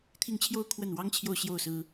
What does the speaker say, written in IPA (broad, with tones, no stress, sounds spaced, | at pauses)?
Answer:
t̪ʰ i˥˧ ŋ t͡ɕʰ j o˥˧ ʊ̯ kʰ w ə˥˩ n w ɑ˥ ŋ t͡ɕʰ j o˥˧ ʊ̯ ɕ j o˥˩ ʊ̯ s ɹ̩˥